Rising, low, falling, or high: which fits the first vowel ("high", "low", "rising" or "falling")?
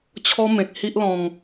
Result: high